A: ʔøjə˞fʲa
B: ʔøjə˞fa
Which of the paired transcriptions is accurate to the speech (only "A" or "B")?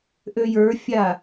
A